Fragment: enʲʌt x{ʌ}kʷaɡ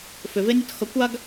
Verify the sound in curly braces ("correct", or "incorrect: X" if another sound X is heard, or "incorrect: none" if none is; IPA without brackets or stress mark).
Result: correct